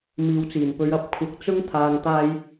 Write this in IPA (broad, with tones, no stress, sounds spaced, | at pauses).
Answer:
m iː˨ w t͡s iː˨˩ n p ɵ˨˧ ɥ ɐ˨˥ p̚ kʷʰ ɐ˨ k̚ t͡s ʊ˥ ŋ t̪ʰ aː˨ ŋ t̪ aː˧ j